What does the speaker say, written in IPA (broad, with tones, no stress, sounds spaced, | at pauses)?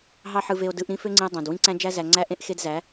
ɦ ɑ˦ ħ ɯ˧ v e˧ o̯ d ɯ˨˦ ʔ ɾ ĩ˦ f ø˦ ŋ͡ǀ ĩ˧ e̯ dˤ æ̃˨ d w ĩ˦ ǀ æ̃˦ d͡ʒ æ˦ z æ˧ ŋ͡ǀ æ˦ ʔ ẽ˦ ʔ x e˦ d z æ˨˦